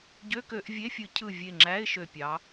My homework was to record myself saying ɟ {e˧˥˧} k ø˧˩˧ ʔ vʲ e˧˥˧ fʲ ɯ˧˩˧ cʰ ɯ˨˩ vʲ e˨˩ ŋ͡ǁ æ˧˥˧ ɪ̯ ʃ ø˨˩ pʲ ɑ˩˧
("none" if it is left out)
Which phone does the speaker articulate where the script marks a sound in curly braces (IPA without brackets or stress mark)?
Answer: ø˧˥˧